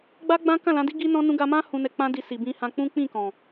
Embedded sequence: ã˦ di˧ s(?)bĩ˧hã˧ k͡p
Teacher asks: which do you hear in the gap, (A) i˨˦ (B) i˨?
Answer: B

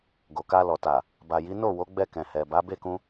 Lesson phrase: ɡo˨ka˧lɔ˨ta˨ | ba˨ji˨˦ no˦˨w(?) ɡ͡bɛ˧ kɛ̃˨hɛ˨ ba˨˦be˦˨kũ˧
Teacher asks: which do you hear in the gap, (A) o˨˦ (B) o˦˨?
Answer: A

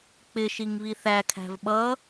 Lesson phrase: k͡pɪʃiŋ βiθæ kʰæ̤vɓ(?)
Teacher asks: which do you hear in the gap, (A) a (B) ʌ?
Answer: B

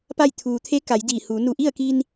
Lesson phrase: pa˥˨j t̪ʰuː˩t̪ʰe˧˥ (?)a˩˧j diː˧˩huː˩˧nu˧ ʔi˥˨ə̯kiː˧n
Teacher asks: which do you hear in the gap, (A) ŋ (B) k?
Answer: B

